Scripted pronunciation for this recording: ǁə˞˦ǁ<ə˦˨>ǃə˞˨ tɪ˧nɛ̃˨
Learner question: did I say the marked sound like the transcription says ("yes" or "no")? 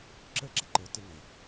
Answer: no